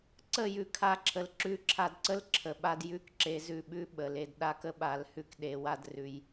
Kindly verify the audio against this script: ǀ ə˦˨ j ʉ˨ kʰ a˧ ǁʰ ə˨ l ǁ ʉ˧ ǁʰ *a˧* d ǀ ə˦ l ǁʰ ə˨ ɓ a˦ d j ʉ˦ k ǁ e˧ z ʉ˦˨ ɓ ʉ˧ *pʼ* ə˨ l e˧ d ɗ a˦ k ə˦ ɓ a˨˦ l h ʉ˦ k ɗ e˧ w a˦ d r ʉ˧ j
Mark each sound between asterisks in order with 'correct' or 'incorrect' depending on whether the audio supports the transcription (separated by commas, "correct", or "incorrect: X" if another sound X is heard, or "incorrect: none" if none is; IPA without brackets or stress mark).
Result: correct, incorrect: ɓ